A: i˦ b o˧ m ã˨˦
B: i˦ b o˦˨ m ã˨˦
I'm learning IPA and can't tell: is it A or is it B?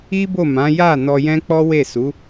B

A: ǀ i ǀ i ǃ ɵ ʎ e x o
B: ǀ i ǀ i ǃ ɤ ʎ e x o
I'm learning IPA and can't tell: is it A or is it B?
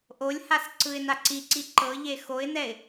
B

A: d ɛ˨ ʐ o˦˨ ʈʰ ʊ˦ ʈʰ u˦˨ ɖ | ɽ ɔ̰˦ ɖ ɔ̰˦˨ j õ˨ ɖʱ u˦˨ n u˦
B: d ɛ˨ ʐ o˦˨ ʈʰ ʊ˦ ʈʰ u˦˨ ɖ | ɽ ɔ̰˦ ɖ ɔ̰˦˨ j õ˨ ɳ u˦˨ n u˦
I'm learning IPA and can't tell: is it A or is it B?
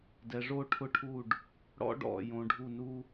A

